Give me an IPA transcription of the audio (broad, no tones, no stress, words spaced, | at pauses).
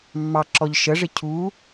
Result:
mːɑǁɔʎ ʃəʐɪ cʰu